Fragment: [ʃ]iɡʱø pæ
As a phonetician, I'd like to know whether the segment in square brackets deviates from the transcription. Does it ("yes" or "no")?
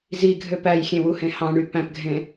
yes